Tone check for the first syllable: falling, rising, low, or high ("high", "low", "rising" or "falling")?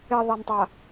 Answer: low